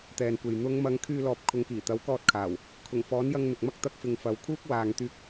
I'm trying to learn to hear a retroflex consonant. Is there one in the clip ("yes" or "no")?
no